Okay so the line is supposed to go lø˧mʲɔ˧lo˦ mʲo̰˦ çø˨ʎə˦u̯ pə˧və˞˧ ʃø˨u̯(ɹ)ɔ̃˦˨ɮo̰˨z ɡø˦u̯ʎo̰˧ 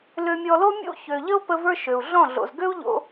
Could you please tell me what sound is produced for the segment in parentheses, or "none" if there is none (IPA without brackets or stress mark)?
ɮ